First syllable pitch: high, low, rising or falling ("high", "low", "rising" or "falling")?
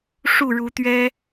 falling